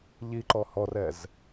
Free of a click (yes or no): no